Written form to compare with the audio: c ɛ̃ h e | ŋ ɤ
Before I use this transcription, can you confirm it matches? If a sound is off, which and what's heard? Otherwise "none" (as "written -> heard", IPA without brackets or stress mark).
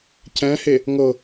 none